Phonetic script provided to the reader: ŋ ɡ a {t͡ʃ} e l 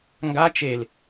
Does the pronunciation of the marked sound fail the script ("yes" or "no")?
no